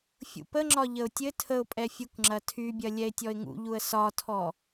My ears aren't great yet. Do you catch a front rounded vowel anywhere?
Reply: yes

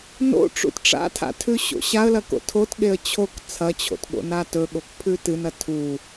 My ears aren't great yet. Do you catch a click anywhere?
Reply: no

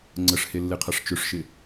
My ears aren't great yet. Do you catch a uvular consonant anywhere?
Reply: yes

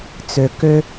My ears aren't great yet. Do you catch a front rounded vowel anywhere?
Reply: yes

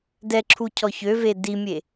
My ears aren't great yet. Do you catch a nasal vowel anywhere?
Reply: no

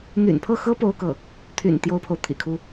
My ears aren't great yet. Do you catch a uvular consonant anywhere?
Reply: no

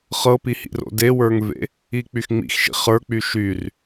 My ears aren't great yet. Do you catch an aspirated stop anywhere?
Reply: no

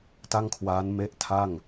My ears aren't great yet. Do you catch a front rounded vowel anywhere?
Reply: no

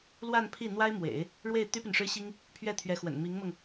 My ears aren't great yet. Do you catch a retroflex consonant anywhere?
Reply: yes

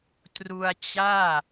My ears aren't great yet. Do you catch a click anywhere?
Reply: no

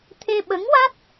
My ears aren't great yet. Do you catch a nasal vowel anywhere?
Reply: no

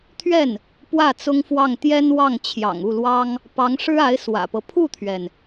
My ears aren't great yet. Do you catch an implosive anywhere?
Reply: no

